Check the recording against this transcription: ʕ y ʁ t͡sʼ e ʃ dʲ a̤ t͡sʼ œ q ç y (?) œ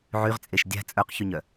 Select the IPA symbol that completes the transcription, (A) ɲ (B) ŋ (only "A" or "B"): A